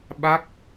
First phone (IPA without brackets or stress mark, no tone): ɓ